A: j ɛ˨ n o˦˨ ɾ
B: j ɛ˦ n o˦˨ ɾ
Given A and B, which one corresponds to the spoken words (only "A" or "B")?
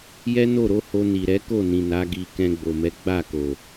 B